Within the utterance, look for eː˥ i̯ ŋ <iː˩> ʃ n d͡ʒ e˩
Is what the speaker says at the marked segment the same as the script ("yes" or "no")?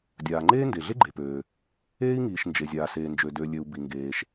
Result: yes